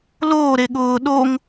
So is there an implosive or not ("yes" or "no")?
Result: yes